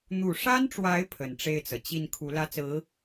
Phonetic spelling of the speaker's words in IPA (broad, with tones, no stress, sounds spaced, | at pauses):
n̪ u˨˩ ʂ a˥ n ʈ͡ʂ w a˧˥ ɪ̯ pʰ ə˨˩ n ʈ͡ʂ e˥˩ ɪ̯ t͡s ɤ˩ t͡ɕ i˥˩ n kʰ u˧˥ l ä˥ t͡s ɹ̩˧˥